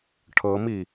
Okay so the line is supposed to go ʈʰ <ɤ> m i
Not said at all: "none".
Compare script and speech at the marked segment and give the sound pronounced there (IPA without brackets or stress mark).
ɤ